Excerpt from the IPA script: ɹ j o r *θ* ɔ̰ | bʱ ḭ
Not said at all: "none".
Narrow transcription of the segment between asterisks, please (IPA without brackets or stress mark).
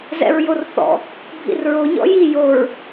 θ